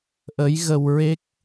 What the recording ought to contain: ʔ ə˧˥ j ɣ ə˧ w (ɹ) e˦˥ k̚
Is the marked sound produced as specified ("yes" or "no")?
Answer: yes